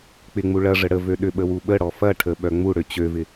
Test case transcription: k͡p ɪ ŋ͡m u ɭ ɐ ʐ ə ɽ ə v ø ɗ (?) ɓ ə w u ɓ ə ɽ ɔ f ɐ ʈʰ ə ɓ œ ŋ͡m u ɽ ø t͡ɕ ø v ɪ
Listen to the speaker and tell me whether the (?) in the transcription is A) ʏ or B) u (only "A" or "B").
A